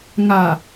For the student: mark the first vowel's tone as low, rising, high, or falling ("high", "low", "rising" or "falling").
low